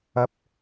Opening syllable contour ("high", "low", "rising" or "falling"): high